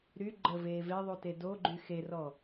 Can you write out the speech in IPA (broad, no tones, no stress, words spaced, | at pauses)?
ɾy ɡ͡ǃəveː veðˤute doɡ͡ǃy xerɔ